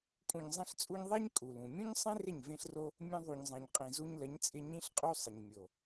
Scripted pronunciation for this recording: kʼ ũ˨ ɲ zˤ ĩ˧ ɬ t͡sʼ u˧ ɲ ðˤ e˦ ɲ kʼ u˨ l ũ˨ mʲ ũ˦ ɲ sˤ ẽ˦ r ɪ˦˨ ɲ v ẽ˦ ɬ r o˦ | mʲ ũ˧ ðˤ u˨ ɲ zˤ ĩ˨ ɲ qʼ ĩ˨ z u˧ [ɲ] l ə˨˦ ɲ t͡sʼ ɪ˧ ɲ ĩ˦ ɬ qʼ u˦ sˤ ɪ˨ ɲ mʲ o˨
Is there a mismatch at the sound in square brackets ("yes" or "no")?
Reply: no